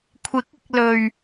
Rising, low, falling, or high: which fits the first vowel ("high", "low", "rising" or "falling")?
rising